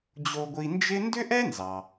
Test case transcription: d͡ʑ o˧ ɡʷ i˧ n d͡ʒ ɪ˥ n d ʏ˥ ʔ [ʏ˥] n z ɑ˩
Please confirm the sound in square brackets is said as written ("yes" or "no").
no